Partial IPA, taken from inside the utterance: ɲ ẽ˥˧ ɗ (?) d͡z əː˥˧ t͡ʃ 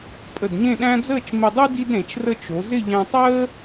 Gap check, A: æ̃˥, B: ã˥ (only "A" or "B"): A